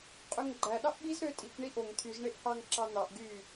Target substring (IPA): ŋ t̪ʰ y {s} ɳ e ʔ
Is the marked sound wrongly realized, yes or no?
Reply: yes